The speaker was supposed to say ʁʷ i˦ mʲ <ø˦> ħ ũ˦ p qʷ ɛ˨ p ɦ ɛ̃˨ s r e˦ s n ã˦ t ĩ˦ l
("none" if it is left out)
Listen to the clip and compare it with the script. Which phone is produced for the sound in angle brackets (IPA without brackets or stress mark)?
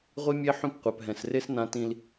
e˦